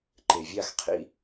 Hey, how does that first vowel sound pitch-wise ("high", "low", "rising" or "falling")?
low